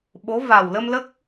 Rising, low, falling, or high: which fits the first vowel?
rising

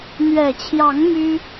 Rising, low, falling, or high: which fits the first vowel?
low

